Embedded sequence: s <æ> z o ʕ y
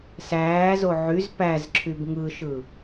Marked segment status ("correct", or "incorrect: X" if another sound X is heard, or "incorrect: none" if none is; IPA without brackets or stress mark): incorrect: æː